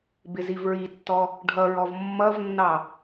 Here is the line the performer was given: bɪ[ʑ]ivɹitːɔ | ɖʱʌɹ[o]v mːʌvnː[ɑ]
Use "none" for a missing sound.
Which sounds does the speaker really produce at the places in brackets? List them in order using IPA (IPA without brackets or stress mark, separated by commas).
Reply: z, ɔ, ɑ